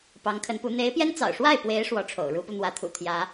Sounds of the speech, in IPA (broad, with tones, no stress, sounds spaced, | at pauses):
p ɑ˧˥ ŋ kʰ ə˧˥ n p u˧˥ n̪ e˧˥ ɪ̯ p j ɛ˥ n t͡s ɑ̰˨˩ ʊ̯ ʂ w a˥˩ ɪ̯ p w e˧˥ ɪ̯ ʂ w ɔ˧˥ ʈ͡ʂʰ o̰˨˩ ʊ̯ ɻ u˧˥ p u˧ n̪ w ä˧˥ t̪ʰ ṵ˨˩ t̪ʰ j ä˧˥